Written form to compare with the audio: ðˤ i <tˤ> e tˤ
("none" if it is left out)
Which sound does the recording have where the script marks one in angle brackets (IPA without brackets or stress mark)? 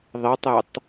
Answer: tˤ